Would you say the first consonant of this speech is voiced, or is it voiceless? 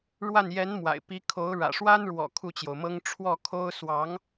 voiced